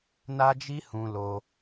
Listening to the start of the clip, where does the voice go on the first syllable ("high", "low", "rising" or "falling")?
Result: high